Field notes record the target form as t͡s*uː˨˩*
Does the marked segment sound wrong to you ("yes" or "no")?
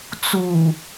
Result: no